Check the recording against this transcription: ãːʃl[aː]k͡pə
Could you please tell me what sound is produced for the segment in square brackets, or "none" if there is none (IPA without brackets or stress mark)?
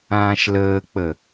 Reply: əː